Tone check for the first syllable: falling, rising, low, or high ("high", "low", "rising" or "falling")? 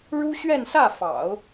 high